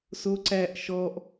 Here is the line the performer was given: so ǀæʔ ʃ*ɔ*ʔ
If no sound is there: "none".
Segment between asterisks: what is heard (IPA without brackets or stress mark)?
ɔ